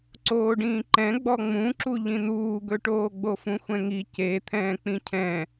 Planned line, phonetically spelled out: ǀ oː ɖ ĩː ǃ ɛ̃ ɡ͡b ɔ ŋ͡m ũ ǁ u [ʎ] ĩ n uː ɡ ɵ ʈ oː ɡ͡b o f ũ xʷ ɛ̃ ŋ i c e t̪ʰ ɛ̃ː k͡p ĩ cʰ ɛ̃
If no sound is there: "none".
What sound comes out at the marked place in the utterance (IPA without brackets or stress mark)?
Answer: ʎ